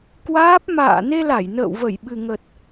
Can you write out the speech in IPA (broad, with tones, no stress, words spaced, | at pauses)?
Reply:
kwaː˦˥p̚ ma̰ː˧˨ ne˧la˧˩j nə̰ː˧˨wvə˧˩jɓɨ˨˩ŋə˨˩t̚